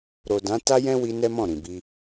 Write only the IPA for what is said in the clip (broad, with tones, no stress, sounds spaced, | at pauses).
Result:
ɾ o˨ d ã˨˦ t a˦ j ɛ̃˦ w i˧ n ɛ˦ m ɔ̃˦˨ ɾ ĩ˨ b i˧